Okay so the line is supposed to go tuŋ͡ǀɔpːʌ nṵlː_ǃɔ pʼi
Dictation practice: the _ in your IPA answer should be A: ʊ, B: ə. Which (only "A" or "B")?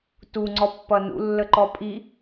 B